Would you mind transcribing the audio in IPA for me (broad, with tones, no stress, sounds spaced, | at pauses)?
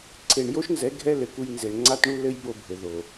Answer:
ǀʰ e˨ ɳ j o˦ ʃ n z ɛ˨˦ ɡʱ ɛ˦ l ɘ˨ k u˧ j n z e˨ ɳ ŋ͡ǀ a˦ t ɳ u˦ l ɘ˦ j b o˧ bʱ ɘ˨ ð o˨